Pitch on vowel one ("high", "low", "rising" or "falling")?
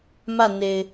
falling